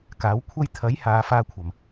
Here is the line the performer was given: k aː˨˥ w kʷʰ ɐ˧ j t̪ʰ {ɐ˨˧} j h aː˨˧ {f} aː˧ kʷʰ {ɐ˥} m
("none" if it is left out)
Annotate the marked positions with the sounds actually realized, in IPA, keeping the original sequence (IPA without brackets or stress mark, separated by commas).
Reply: ɐ˨˥, f, ɐ˨˩